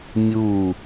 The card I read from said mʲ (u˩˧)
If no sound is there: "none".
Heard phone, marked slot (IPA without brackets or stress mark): u˧˩